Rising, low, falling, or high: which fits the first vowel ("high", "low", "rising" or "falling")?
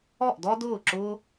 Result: falling